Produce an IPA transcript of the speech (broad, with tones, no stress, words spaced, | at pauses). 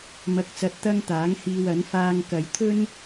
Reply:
mɐ˧k̚t͡sɐ˧t̚t̪ɐ˥ŋ t̪aː˨˥ŋhiː˧wɐ˨˥n faː˧ŋkɐ˨˧jt̪ʰɵ˥n